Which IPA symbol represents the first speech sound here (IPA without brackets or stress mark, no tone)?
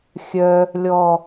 xʲ